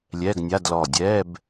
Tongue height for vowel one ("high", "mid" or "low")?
mid